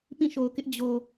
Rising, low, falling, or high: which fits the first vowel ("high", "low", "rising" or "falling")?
falling